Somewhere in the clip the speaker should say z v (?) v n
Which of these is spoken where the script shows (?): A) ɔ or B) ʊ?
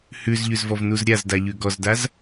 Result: A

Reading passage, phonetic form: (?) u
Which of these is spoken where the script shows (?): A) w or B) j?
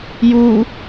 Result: B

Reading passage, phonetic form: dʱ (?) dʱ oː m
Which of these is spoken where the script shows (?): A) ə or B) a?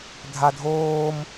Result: B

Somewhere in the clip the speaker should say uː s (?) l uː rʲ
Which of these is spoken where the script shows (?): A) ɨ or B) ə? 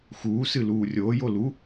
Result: A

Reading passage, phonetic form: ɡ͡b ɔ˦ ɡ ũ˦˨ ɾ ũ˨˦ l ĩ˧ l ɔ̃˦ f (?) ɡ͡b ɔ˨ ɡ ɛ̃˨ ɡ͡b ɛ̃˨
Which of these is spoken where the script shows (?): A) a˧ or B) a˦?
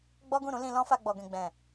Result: A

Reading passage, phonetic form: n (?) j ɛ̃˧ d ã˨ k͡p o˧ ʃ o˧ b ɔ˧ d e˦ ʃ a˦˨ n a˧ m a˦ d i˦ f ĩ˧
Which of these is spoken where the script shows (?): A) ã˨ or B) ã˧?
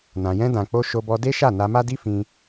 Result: A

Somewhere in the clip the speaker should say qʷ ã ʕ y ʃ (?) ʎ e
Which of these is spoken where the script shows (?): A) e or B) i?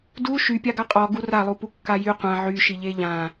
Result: B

